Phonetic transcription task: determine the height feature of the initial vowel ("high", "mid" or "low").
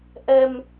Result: mid